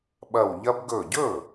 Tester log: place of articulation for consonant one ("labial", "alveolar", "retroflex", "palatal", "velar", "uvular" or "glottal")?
labial